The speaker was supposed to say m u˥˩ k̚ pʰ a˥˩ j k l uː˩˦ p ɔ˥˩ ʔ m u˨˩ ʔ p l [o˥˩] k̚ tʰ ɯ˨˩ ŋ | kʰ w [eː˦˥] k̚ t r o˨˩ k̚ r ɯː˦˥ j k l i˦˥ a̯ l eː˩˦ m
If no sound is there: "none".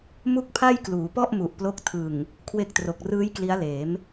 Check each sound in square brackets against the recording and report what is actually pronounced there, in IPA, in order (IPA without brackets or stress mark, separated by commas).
o˦˥, e˦˥